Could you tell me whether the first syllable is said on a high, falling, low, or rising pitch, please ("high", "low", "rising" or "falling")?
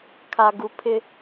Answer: low